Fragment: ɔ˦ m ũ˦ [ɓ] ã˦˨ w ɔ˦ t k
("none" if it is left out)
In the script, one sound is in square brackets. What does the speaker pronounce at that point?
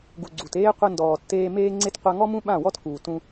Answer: ɓ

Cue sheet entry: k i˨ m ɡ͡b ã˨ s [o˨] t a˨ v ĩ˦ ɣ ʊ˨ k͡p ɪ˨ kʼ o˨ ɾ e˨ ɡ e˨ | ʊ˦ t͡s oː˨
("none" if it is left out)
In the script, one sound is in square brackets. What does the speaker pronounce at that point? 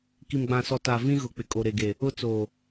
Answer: ɔ˨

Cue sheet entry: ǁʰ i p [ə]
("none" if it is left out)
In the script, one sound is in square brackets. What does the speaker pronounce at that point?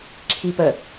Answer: ə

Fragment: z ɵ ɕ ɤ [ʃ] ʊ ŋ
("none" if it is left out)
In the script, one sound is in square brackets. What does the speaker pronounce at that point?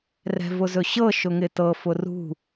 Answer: ʃ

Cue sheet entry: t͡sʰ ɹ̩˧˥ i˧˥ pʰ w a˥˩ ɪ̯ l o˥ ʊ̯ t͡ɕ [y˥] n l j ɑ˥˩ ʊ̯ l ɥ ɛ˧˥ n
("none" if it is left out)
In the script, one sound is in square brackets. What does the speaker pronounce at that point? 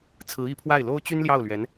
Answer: y˥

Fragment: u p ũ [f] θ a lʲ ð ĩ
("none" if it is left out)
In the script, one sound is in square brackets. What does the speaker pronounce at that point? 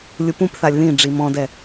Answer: p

